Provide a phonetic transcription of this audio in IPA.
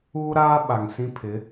uː˦ ɾ aː˦ ɓ a˨ ŋ s ĩ˦ pʰ ɪ˨˦

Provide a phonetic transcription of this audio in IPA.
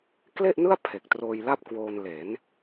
k l e˥˩ ʔ n ɯ˥˩ a̯ pʰ e˨˩ k̚ t r oː˧ j l a˥˩ p̚ k w oː˧ n l eː˩˦ n

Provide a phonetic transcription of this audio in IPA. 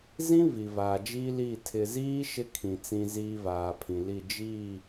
z ĩ˦ v i˨ v aː˨ d͡ʒ iː˦ l iː˦˨ tʰ ɪ˨ z iː˦ ʃ ɪ˦ kʰ ĩ˨ t͡s ĩ˦ z iː˦ v aː˨ pʰ ĩ˨ l i˦˨ d͡ʒ iː˦˨

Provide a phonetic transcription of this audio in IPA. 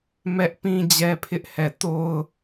m ɛ˦ ʔ p ĩ˦ d͡ʑ ɛ˦ pʰ ɪ˦ ʔ h ɛ˦˨ t o˦ ʊ̯

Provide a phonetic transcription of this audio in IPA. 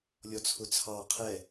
lʲ ɔ t͡sʰ ʊ t͡sʰ ɑ qʰ ɛ

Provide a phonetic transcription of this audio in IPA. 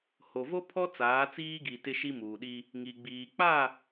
h o˨ v o˦ pʰ ɔ˦ t͡s aː˨˦ t͡s iː˦ ɡ i˨ t ɪ˦ ʃ i˦ m uː˨ ɗ i˦ | ŋ i˨ ɡ͡b iː˨ k͡p a˦˨

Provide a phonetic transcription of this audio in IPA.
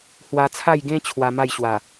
h w a˧ t͡sʰ a˥˧ j ɡ ẽ˦ t͡ɕʰ w a˧ m a˥˧ j ɕ w a˨˩

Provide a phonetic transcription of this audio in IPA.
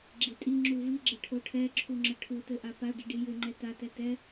ɡ͡ǁ i tʼ i ŋ͡ǁ u v i ɡ͡ǁ ɘ ʈʰ o ʈʰ ɛ ǁʰ u ŋ͡ǁ ə ʈʰ u t ɘ ʔ a p a ɖ i ɖ i j ɘ ŋ͡ǃ ɛ t a t ɛ t ɛ

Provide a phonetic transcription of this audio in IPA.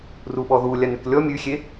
r u ɓ ɔ ð u lʲ a n ʉ k lʲ ɔ mʲ ʉ xʲ e

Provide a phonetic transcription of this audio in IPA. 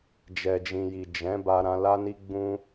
d͡ʒ ɛ˨ d͡ʒ ĩ˨ j i˨ d͡ʒ ɛ̃˨˦ b a˧ ɾ ã˧ l a˦ n i˦ ɡ͡b ũ˦

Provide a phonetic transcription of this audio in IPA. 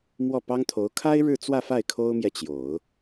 m w ɔ˥˩ p ɑ˥ ŋ t̪ʰ o˧˥ ʊ̯ kʰ a˥ ɪ̯ ɻ ɻ̩˥˧ t͡s w ä˥˧ f a˥˩ ɪ̯ kʰ o˥ ʊ̯ m j ɛ˨ t͡ɕ j o˨˩˦ ʊ̯

